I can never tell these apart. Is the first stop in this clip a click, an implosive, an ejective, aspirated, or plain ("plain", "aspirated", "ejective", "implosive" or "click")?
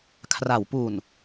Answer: aspirated